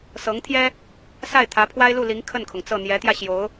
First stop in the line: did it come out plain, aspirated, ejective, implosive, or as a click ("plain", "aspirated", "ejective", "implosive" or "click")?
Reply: aspirated